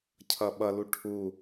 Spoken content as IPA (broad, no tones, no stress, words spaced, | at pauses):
cʰʌɓʌlu ʈʰu